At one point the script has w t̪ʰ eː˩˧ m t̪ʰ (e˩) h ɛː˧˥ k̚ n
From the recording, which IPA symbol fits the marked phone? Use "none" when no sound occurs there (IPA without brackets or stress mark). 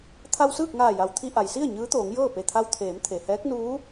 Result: e˩